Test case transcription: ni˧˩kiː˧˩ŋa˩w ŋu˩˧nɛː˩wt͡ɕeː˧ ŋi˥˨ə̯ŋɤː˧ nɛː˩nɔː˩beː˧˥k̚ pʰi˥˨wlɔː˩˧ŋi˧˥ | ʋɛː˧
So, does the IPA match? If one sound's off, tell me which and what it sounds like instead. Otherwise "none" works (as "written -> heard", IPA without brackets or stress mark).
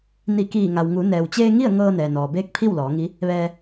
none